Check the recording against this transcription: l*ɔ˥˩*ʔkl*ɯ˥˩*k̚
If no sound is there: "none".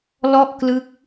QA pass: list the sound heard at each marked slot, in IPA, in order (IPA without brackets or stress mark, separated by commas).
ɔ˥˩, ɯ˦˥